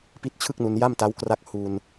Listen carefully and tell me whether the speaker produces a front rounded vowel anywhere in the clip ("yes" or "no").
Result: no